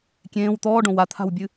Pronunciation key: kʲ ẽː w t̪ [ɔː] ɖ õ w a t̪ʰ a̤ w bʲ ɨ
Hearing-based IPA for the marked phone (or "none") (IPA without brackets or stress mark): ɔː